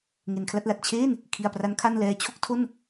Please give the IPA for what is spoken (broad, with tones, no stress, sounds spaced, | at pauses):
ŋ e˩˦ n kʰ l a˥˩ t̚ l a˨˩ t̚ t͡ɕʰ eː˥˩ n | kʰ i˧ a̯ p r a˦˥ n kʰ a˥˩ n l ɛː˧ t͡ɕʰ o˥˩ k̚ tʰ o˥˩ n